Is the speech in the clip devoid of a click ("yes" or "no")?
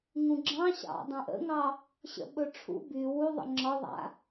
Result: no